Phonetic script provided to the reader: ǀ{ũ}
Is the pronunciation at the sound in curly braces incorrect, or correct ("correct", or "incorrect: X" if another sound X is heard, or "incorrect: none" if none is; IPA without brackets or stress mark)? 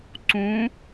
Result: correct